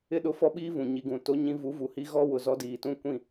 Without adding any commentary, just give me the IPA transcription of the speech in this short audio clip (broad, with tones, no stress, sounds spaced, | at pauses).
ɪ˦˨ ɗ ʊ˦ f ɔ˦ ɓ iː˦ v ũ˨ ɲ i˨ ɡ ũ˨ t o˦ ɲ ĩ˦ v u˨˦ v u˨ h i˦ ɣ ɔ˦ w ʊ˨ z ɔ˦ d iː˨ t ũ˦ kʷ ĩ˦˨